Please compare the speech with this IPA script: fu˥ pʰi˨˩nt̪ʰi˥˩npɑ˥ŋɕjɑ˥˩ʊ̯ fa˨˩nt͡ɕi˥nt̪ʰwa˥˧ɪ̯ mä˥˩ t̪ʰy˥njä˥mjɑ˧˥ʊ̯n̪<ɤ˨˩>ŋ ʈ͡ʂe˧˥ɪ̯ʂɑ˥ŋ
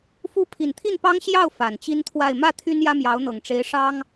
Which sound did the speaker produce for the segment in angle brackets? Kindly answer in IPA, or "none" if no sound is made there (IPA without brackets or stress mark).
ɤ˨˩